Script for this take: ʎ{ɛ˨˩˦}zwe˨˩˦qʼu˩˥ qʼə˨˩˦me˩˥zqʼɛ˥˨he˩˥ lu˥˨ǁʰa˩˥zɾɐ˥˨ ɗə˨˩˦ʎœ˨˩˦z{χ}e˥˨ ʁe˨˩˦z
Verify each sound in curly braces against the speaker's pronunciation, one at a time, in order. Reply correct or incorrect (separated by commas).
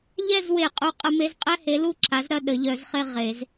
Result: incorrect, correct